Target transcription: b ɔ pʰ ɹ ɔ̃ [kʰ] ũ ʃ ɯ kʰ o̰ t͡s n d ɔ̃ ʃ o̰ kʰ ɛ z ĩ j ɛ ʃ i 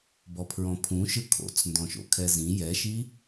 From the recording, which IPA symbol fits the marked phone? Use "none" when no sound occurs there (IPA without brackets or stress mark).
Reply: pʰ